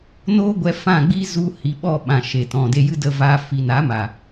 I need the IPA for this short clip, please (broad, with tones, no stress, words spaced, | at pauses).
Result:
noː˦ɡʷɛ˧fã˦˨ ɡ͡bi˧ zu˧ hi˨ ɓɔ˦˨ɓã˨ ʃe˨ tɔ̃˨de˧jɨ˦ də˧vaː˧ fi˨ na˨˦ma˨